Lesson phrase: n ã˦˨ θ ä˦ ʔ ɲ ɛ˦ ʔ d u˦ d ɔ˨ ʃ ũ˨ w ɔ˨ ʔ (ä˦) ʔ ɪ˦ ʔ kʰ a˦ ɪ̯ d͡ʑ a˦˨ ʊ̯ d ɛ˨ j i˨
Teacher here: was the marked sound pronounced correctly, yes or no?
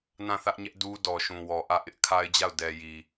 no